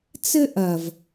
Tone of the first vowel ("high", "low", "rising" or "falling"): high